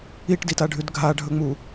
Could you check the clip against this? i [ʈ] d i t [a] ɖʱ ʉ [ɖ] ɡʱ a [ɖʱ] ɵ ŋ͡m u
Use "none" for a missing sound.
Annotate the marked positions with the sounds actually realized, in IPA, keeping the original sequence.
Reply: ʈ, a, d, ɖʱ

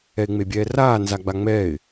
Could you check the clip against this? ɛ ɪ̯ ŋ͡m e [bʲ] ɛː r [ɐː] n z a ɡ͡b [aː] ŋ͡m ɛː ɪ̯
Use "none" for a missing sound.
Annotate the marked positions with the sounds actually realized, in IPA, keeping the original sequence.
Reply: bʲ, aː, a

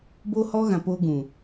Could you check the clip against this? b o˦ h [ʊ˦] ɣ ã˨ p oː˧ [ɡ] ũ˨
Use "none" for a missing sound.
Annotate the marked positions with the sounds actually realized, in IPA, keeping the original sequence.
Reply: ɔ˦, ɡ

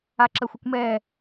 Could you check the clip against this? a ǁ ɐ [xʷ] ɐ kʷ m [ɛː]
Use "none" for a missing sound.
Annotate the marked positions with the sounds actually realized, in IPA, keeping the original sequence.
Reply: xʷ, ɛː

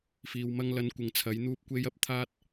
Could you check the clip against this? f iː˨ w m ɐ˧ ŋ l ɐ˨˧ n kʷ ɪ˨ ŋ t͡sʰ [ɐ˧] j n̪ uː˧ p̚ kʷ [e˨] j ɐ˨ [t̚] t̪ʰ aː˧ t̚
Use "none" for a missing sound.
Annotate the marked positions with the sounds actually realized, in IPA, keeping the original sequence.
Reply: ɐ˨˧, e˧, p̚

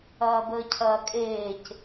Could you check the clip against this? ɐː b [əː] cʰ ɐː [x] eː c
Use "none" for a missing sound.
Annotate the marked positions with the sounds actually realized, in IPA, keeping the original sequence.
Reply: əː, kʼ

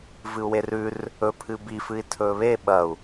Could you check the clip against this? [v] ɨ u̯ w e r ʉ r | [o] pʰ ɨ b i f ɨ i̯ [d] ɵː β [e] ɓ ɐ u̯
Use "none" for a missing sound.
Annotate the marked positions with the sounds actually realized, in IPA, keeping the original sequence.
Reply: v, ɵ, tʰ, e

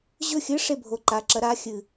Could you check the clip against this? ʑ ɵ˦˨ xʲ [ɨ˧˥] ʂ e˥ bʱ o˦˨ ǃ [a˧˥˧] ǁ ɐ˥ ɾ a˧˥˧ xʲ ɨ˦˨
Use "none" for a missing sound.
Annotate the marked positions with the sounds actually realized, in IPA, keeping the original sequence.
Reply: ɨ˧˥, a˧˥˧

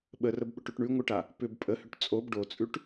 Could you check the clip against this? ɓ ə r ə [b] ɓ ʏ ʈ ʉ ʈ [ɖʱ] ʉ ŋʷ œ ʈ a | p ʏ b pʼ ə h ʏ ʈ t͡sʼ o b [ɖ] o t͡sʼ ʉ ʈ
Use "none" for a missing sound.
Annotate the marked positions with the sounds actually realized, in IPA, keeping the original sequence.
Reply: b, ɳ, ɖ

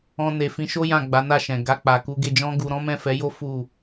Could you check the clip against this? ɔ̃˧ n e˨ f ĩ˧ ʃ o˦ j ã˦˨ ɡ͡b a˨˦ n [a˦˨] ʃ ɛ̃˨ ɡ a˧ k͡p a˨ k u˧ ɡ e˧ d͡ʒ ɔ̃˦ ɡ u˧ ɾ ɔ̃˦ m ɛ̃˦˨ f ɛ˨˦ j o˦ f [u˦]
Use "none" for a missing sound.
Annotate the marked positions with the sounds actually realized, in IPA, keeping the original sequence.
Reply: a˦˨, u˦˨

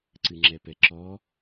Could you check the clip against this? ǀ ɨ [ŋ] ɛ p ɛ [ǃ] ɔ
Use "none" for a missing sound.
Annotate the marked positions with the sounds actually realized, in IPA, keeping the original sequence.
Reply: ŋ͡ǁ, ǁ

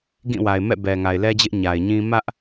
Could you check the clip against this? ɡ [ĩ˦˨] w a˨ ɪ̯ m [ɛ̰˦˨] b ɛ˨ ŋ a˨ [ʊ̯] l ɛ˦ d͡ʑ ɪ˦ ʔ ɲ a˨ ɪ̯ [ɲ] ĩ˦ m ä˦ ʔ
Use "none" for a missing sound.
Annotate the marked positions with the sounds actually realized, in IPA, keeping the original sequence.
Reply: ĩ˦˨, ɛ̰˦˨, ɪ̯, ɲ

